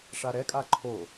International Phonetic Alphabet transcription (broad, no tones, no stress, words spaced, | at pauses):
ʂaɾɛkʼa ǃʰo